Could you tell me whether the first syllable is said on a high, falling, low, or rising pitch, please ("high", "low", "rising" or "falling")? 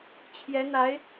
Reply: rising